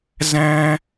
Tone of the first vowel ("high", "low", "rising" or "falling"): high